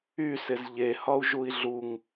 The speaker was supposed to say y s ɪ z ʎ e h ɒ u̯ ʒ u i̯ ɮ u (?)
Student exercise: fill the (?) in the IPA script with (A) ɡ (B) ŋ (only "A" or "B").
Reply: B